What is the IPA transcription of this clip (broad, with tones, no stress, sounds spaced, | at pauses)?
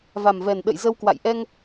v a˨˩ m v ɛ˨˩ n ɗ ə̰˧˨ j z ə˧ w k w a̰˧˨ j ʔ ɛ˧ ŋ